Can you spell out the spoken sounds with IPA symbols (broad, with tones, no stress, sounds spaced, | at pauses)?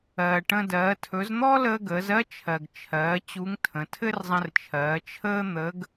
ɜː˩ ʈ ə̃˧ d ɜː˩˧ tʰ ɵ˩˧ z n̪ ɔː˥ l əː˧ ɡ əː˩˧ z ɜ˥ t͡ʃʰ ɜ˩ ɡ t͡ʃʰ ɜː˩˧ t͡ɕ u˧˥ ŋ tʰ ə̃˩˧ tʰ ɘ˥ r zˤ ə̃˧ r t͡ʃʰ ɜː˩˧ t͡ʃʰ əː˥ n̪ ə˧˥ ɡ